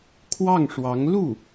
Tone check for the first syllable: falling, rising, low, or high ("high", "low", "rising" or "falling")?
falling